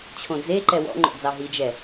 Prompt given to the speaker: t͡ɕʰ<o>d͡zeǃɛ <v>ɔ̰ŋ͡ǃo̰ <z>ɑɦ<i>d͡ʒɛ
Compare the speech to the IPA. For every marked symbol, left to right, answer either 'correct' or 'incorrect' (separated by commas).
incorrect, incorrect, incorrect, correct